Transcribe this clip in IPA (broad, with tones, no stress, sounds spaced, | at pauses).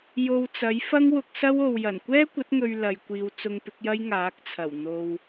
j o˧ w t͡s ɐ˨˥ j f ɐ˥ ŋ w ʊ˧ k̚ s ɐ˥ w o˨ w j ɐ˨˩ n kʷ ɛː˥ kʷ ɐ˨˥ t̚ ŋ ɵ˨ ɥ l ɐ˨ j kʷ iː˨ w t͡s ʊ˧ ŋ p ɪ˨˥ k̚ j ɐ˥ j ŋ aː˨˥ k̚ t͡sʰ ɐ˨˩ w n̪ o˨ w